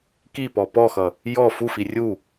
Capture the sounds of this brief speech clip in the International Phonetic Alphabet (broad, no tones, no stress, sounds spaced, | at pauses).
k i p ɔ p ɔ x ʌ | j ɔ f u f i rʲ u